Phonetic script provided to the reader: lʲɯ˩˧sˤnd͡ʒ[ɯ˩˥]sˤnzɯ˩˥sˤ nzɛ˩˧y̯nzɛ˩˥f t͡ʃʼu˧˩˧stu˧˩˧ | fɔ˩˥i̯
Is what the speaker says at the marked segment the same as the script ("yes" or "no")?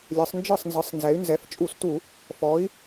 no